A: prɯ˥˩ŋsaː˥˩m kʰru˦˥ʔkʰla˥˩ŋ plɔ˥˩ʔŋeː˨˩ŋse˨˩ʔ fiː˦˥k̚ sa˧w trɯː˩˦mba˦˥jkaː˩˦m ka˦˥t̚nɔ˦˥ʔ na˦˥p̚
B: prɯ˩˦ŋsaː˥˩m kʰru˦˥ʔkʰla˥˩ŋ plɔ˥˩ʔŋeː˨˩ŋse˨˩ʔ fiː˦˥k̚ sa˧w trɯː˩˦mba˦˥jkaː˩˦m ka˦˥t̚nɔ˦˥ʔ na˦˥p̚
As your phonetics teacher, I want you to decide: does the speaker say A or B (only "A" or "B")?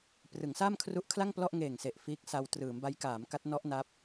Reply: B